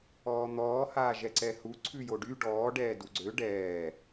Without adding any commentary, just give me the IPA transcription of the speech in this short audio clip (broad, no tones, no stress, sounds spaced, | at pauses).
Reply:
ɔː n̪ ɔː h aː ʒ ɛ ǀ ɛ h u ǀʰ ʉ j o ɖ y ɖ ɔː ɖ ɛː d u ɡ͡ǀ ø ɖ ɛː